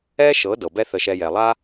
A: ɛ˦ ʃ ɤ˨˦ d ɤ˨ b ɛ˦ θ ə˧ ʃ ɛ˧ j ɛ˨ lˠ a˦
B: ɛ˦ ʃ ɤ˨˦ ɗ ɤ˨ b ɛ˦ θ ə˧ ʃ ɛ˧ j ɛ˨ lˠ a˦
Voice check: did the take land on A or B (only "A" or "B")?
A